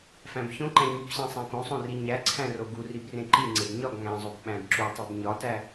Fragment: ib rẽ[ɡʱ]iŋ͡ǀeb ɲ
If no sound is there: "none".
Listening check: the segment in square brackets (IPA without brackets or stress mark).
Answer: ǃ